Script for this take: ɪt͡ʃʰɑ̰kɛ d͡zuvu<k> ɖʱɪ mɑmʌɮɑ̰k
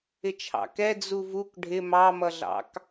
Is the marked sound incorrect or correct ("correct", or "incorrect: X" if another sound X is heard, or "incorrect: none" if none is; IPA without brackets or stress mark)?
correct